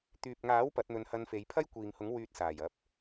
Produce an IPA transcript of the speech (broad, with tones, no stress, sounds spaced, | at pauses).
t̪ yː˨ p̚ ŋ aː˨˥ w p ɐ˨˥ t̚ n̪ ɵ˧ n h ɐ˧ n f e˨˧ j pʰ ɐ˥ j kʷ iː˨ ŋ h ʊ˨˥ ŋ w yː˧ t̚ s aː˨˩ j ɐ˧ p̚